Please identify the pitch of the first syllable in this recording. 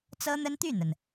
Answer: high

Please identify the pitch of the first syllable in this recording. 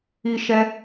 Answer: high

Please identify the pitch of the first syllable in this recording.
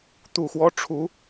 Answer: low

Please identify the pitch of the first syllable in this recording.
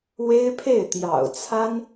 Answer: high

